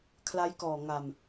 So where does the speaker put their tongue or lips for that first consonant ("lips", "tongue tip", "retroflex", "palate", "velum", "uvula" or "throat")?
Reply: velum